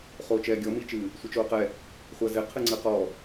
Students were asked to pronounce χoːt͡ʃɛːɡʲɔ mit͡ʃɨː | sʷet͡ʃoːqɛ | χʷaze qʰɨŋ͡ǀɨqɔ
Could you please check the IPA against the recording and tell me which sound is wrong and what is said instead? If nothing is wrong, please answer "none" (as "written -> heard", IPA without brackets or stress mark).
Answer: none